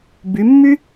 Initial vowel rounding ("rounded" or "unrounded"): rounded